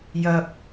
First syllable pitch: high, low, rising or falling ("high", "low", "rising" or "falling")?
low